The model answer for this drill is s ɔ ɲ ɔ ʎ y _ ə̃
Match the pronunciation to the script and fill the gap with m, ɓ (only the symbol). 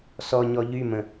m